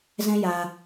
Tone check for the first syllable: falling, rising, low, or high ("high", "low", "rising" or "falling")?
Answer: high